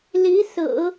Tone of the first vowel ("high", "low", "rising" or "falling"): rising